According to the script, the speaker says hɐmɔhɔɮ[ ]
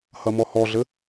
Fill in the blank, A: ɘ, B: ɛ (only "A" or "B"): A